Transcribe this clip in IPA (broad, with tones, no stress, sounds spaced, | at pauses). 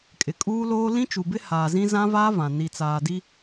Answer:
kʼ ɪ˨ kʼ uː˦ l oː˦ l ĩ˦ t͡ʃ u˨ b ɪ˦ h aː˨ z ĩ˦ z ã˦ v aː˦ v ã˨ n i˨ t͡s aː˨ d i˦